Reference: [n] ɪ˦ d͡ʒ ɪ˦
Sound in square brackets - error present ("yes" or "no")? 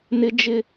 no